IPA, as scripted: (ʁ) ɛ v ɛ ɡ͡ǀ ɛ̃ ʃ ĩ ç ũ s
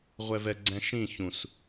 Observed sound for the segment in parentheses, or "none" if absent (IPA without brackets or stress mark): ʁʷ